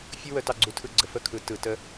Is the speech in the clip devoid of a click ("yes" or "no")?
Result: no